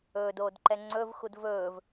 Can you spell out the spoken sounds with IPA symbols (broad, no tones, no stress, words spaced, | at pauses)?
ɵːdoːdǃɛ ŋ͡ǀɵvxud vɵːv